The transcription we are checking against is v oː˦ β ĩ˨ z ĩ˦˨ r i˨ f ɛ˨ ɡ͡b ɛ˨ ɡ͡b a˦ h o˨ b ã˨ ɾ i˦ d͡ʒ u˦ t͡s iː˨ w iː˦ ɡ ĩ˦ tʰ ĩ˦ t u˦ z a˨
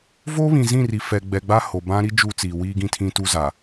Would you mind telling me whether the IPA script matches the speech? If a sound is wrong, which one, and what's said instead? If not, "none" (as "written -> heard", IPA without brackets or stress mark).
ã˨ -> ã˦